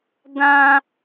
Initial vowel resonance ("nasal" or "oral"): nasal